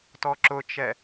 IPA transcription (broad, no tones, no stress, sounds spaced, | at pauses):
t ɔ ǁ ʊ t͡ʃ ɛ